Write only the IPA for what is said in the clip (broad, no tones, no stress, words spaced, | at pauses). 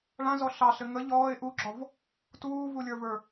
ɭã zɔɬɑɬɘ ŋə ʎɔːɪ̯ ʔuɡ͡ǁɔv | tuːvulʲə˞və˞